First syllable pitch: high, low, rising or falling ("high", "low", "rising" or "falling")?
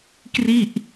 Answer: falling